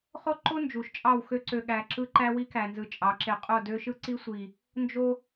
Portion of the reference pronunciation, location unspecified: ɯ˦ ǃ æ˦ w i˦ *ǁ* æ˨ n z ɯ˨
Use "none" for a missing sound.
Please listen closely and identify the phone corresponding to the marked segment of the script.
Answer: k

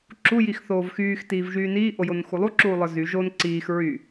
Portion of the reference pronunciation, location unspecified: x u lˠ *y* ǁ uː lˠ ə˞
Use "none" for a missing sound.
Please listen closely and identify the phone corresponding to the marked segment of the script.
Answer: u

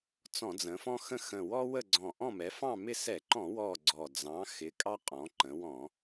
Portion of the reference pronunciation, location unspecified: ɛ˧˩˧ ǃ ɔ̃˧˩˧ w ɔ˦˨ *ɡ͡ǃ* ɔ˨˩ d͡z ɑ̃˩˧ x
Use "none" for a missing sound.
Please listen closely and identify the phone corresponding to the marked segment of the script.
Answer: ɡ͡ǀ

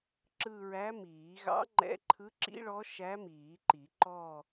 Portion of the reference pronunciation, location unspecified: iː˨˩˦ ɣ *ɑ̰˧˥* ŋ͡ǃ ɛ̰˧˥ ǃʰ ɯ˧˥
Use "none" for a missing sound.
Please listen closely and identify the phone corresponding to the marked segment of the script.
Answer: ɑ̰˧˥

